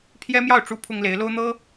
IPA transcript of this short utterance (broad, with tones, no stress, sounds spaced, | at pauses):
pʰ j ɛ˥ m j ɑ˥˩ ʊ̯ ʈ͡ʂ u˥ pʰ ʊ˥ ŋ l e˧˥ ɪ̯ l o˥ ʊ̯ n̪ ɤ˥